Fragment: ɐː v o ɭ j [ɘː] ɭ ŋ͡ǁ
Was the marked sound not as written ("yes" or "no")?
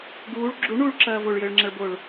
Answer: no